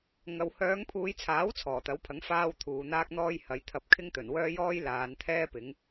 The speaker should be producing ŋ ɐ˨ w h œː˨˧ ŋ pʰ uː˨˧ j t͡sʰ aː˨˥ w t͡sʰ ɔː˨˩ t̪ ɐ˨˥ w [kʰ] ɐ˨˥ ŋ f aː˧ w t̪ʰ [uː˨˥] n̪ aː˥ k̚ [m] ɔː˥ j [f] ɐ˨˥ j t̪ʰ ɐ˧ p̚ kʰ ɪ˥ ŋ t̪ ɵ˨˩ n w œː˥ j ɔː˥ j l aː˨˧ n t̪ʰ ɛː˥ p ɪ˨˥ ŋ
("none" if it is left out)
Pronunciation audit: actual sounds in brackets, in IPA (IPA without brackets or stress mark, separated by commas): pʰ, uː˨, n̪, h